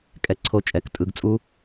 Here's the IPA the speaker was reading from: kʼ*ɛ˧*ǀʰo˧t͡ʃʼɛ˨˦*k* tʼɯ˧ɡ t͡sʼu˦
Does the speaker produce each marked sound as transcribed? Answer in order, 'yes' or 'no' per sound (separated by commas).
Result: yes, yes